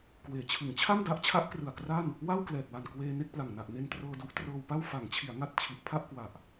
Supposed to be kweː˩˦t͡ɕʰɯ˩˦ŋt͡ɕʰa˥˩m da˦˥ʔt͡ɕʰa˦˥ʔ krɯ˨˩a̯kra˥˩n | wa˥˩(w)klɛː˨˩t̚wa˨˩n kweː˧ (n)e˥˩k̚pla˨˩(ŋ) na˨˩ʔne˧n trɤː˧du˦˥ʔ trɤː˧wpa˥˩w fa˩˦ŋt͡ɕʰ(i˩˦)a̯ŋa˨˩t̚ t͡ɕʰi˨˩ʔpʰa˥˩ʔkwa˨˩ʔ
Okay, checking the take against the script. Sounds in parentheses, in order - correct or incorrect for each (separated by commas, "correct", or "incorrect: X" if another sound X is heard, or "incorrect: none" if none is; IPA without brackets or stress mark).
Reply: correct, correct, correct, correct